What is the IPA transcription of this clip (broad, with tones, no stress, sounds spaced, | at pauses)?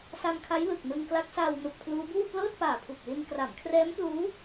s a˧ m kʰ a˦˥ j l ɯ˨˩ k̚ n ɯ˧ ŋ k l a˦˥ k̚ s aː˧ w n u˨˩ k̚ pʰ l uː˦˥ b uː˥˩ p l ɤː˥˩ t̚ p aː˨˩ pʰ u˨˩ k̚ l i˧ n k r a˩˦ m kʰ r ɛː˦˥ m p l uː˦˥